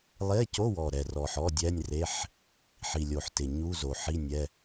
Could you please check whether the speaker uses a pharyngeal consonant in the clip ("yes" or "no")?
yes